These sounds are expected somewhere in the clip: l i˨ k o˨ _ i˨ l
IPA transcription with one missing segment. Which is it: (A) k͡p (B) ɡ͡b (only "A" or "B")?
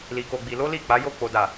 B